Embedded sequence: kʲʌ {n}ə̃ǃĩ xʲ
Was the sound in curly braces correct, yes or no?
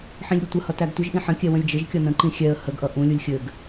yes